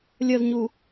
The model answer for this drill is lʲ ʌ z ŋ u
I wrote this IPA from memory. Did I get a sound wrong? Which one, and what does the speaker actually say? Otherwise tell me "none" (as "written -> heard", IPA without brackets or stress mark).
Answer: ŋ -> ɲ